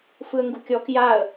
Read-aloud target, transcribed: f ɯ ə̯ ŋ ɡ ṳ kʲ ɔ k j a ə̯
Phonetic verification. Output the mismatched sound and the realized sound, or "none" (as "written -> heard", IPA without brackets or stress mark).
none